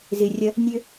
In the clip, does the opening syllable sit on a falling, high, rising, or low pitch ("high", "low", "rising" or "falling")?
low